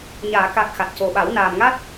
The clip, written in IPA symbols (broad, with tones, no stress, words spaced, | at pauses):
ɲaː˨˩˨ ka˨˩k̚ xa˨˩t̚co˨˩ɓa˨˩˦w naː˨˩mŋa˦˥t̚